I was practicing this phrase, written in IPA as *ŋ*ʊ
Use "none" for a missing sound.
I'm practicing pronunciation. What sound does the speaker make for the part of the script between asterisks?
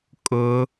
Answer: kʼ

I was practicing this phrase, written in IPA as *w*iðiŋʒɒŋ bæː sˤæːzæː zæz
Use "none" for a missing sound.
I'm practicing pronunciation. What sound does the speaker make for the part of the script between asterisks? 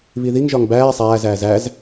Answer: β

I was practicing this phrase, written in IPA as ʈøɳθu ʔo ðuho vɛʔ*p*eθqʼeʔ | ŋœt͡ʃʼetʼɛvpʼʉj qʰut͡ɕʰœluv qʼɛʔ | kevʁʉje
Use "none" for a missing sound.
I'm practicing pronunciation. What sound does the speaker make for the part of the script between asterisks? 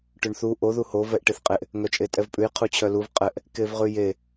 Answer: ʈ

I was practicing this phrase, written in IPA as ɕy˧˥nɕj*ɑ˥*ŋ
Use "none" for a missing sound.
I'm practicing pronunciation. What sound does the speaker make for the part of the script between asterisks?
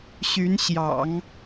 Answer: ɑ̰˨˩˦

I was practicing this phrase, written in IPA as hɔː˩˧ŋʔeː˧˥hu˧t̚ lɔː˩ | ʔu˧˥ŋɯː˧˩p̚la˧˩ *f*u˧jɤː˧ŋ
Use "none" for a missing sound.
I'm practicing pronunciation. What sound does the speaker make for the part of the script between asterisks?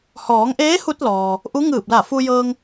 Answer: f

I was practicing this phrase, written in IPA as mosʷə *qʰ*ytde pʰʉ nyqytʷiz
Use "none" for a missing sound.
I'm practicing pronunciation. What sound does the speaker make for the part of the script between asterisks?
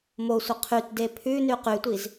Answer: qʰ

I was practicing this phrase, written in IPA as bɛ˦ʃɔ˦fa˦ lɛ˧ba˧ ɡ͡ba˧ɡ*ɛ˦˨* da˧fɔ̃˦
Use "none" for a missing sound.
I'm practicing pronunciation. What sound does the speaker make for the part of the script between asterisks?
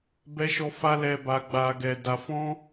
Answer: ɛ˧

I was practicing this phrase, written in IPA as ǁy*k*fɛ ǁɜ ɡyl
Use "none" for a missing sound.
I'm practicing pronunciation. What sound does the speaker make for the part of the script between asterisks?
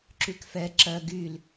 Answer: k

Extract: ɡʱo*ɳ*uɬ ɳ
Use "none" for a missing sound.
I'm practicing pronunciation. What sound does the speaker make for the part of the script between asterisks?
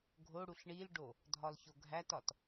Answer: ɽ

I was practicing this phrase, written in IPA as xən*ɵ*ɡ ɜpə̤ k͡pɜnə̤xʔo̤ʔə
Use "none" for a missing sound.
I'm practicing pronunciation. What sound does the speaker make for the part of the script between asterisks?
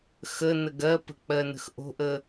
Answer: ə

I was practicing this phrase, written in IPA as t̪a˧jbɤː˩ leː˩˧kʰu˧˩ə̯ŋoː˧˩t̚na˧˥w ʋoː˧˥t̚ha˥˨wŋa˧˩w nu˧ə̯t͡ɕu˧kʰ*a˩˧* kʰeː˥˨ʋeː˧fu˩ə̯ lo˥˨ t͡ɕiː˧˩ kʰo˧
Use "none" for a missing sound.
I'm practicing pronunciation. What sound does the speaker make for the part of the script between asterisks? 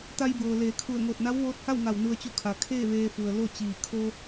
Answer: a˩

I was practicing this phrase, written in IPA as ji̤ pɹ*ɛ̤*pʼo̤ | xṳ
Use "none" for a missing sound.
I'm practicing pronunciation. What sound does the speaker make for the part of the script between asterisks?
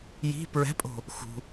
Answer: ɛ̤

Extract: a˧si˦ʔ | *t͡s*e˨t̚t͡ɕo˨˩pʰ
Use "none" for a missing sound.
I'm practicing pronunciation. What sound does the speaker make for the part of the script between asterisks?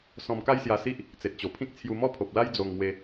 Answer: t͡s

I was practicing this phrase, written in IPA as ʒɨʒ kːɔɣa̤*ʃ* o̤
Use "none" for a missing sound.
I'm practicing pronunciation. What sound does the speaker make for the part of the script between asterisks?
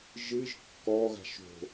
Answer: ʃ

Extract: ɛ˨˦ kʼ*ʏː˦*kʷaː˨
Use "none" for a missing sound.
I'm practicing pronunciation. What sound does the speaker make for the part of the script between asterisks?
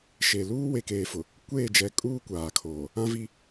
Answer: uː˦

